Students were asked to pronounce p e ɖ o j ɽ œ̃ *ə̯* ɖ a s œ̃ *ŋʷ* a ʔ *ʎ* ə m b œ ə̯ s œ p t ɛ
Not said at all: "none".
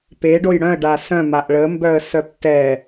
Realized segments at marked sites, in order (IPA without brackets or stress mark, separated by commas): ə̯, m, ɭ